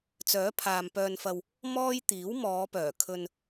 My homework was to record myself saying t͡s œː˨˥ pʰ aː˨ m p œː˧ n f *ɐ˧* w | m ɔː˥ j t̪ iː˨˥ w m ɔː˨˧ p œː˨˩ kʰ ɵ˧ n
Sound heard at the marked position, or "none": ɐ˧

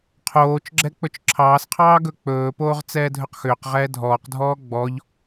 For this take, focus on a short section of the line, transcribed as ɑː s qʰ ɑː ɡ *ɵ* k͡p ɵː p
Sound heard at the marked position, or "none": ɵ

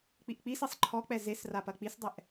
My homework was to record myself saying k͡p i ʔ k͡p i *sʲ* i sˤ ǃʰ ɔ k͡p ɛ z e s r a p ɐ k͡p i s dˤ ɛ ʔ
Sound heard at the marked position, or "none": s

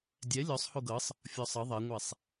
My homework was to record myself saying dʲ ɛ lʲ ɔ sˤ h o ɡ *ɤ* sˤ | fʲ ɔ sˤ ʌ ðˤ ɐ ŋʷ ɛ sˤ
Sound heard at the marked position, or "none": ɤ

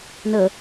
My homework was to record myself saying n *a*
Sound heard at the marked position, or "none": ə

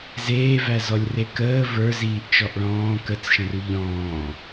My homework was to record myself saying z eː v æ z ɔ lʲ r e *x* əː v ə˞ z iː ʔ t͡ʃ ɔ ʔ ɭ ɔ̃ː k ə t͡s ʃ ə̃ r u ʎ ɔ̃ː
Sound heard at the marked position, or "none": k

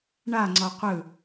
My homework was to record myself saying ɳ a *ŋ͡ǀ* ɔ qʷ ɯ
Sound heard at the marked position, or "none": ŋ͡ǀ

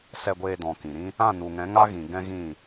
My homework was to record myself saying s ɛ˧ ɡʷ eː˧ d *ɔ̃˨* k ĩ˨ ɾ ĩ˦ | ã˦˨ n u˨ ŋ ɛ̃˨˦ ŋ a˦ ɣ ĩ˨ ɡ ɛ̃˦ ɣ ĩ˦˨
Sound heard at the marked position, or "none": ɔ̃˨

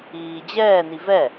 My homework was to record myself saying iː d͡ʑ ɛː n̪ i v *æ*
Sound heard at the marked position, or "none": ɛ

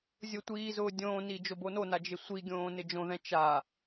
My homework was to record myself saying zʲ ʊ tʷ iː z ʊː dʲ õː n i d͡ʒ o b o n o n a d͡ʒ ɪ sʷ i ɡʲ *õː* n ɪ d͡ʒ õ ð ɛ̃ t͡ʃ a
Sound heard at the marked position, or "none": õː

